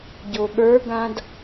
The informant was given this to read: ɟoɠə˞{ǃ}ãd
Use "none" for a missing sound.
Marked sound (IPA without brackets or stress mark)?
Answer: ɡ